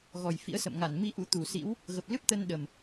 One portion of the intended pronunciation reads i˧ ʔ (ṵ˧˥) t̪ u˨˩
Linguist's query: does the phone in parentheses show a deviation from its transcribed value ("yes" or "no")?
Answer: no